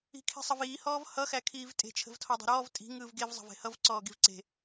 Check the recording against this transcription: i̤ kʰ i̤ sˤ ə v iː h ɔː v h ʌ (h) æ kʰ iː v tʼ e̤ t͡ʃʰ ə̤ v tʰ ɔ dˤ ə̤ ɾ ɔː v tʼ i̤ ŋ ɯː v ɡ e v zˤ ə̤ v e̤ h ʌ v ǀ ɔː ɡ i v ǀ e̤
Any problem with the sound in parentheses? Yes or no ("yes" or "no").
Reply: yes